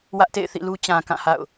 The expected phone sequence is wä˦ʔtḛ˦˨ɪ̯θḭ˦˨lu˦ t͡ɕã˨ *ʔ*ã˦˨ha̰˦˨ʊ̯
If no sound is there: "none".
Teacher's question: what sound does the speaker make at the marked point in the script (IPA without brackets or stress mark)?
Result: k